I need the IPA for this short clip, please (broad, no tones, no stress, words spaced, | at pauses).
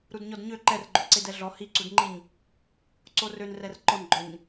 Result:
ɾudɲɔdɲø ǃɛrɡ͡ǃɵǀe dɛɮɔ hiǀudŋ͡ǃiɲ | ǀorønrɛr ǃɔnɡ͡ǃœɲ